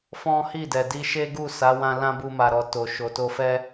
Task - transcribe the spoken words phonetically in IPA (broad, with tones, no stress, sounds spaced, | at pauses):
f ɔ̃˦ h i˦˨ d ɛ˨ d i˧ ʃ e˦ ɡ u˦˨ s a˨˦ w ã˧ l ã˦ b u˧ m a˨ ɾ ɔ˨ t o˨ ʃ o˨ t o˧ f ɛ˦